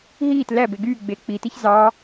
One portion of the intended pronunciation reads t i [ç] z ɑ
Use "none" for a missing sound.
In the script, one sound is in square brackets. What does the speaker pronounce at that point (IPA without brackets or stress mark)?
ç